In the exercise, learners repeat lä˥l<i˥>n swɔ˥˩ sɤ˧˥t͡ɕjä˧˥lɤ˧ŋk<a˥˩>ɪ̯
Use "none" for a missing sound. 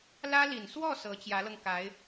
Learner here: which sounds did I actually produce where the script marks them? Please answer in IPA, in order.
i˨˩, a˧˥

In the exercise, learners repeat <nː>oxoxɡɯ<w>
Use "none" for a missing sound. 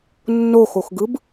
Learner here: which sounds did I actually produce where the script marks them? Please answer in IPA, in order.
nː, b

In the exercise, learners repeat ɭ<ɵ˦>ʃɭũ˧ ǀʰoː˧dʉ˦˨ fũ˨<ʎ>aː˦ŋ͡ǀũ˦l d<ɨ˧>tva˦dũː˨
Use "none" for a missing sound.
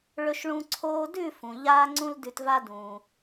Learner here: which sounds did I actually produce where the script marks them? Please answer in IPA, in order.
ɵ˧, ʎ, ʉ˧

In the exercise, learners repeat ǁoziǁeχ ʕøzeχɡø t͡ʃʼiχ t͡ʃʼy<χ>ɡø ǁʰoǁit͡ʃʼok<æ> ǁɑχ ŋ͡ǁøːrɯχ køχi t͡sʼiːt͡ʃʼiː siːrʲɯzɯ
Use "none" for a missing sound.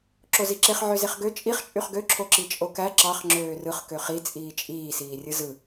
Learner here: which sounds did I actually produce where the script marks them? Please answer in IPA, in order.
χ, æ

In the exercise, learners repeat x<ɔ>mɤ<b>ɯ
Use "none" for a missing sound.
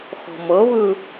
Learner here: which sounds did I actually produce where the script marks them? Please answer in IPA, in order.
ɔ̤, β

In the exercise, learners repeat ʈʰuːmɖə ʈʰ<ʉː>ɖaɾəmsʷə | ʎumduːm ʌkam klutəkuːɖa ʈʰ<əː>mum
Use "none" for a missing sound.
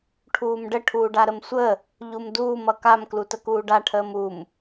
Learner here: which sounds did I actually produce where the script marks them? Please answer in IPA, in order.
uː, əː

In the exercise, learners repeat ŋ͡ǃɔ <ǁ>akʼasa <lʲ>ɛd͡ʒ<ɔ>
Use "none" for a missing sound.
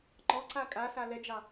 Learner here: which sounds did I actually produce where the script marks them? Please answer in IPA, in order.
ǀ, l, ɑ

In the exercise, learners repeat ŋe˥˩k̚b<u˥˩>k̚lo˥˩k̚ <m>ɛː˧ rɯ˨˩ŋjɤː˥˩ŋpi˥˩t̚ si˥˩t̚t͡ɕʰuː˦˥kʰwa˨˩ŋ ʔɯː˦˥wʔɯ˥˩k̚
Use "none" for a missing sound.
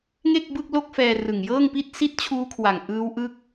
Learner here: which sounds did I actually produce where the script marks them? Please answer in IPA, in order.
ɯ˥˩, f

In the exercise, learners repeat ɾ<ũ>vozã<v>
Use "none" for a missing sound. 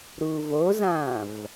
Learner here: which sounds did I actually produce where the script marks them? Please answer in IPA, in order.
u, v

